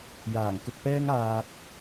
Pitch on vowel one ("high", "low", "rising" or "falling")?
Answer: low